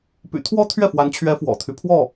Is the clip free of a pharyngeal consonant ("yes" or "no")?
yes